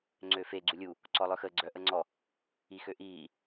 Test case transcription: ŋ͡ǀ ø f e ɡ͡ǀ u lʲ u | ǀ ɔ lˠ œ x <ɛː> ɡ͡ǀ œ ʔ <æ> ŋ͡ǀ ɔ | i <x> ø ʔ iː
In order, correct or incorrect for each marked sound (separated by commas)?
incorrect, incorrect, correct